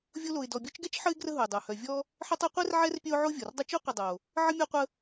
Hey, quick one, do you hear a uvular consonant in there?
yes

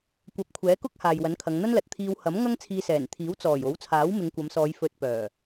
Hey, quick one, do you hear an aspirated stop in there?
yes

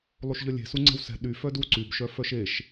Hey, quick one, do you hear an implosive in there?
yes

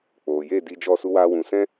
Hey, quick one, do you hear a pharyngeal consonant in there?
no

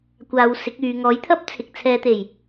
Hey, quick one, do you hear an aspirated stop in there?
yes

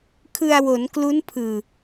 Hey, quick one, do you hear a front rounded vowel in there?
no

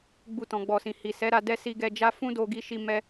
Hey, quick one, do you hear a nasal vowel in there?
yes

